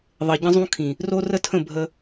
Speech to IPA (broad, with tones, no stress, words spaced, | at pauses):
ðˤɘ˨ɟə̃˦zˤũ˦kʰĩ˨ | ro˦rə˦tʰə̃˦˨ bʱə˦